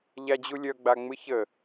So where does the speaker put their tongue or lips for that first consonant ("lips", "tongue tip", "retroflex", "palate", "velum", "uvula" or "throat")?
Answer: palate